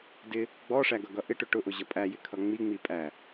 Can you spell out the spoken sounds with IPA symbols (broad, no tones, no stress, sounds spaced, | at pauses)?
d ɪ | ɡ͡b ɔ ʂ æ ɡ ʌ ɡ ʌ ʔ ɪ ʈ ʊ ʈ ʊ ʔ ʊ ʑ ʌ pʼ æ j ɪ kʰ ʌ ŋ͡m i ŋ͡m i pʼ æ